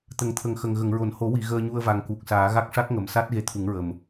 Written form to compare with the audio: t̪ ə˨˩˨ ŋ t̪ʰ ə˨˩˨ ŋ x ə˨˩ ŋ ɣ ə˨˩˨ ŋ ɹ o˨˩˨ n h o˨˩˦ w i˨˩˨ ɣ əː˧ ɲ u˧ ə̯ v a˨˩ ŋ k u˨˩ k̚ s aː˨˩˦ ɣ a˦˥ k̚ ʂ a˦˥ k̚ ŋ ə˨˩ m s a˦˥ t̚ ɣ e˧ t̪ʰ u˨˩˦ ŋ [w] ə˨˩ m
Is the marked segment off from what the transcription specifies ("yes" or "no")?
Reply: yes